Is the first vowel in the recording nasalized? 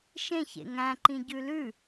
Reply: yes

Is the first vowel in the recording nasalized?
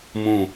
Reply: yes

